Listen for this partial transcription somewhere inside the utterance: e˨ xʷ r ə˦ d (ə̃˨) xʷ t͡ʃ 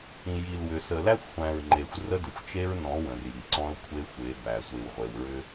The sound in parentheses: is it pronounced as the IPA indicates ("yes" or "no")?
no